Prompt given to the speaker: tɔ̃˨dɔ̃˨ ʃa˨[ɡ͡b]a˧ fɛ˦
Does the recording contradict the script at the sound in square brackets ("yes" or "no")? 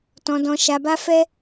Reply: yes